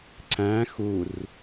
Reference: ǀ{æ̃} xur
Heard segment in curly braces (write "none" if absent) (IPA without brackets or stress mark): æ̃